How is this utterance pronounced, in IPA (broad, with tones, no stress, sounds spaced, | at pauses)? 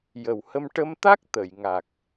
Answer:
j ə˨˩ w h ə˧ m ʈ ə˧ m t̪ a˦˥ k̚ t̪ ə˨˩˨ j ŋ a˨˩ k̚